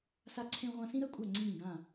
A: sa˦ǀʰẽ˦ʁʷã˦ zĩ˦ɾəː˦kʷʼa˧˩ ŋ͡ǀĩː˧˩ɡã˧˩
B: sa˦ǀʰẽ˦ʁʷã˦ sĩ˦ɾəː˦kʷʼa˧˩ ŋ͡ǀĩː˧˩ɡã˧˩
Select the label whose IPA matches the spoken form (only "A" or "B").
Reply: B